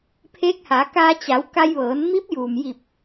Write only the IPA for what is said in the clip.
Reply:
pʰeː˧˥k̚haː˩˧kaː˧ t͡ɕa˩˧w ka˧jʋɤː˩˧n mi˧˥p̚juː˩m ji˧˩p̚

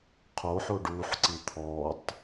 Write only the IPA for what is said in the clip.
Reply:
qʰoħo ɖuħǀi t̪ʰɔtˤ

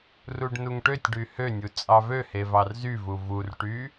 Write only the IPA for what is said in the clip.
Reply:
ruɖnuŋʈøtʲɖy hønʲu t͡sʼɑvøhe vɑrzyvu vurʈy

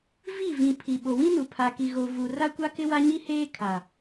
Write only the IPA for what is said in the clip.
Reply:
vi˦˨ vĩ˨ pʰi˨ ɓo˨wĩ˦nu˨ pʰa˨ki˨ ɣo˨vu˨ ra˦kʷa˦ kɪ˦wa˦ɲi˦heː˦ kʰa˨

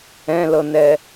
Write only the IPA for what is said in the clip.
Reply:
ɛ̃lɤnɛ

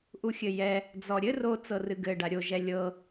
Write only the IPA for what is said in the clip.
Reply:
ʔuxʲɘjɛ | d͡zɔɾʲɘ ro t͡sɤrɨɡɘ ɖaɾʲo ʒɛlʲɤ

